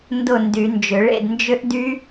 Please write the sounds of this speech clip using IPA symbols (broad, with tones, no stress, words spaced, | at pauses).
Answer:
ndʊ˥˨ndy˨˩˦nd͡ʒʏ˨˩˦ ɭḛ˥˨dnd͡ʒʏ˦˥ʔdy˦˥